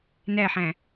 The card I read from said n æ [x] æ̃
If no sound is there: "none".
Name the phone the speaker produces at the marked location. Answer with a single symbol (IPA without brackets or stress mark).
ħ